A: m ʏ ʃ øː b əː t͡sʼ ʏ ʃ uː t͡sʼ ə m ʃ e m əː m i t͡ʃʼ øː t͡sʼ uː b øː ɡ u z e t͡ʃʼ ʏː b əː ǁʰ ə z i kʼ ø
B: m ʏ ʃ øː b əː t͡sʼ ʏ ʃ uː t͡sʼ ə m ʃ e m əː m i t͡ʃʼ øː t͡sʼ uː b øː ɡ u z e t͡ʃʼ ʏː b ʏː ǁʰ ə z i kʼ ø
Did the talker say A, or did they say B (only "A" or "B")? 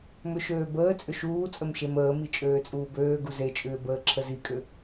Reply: A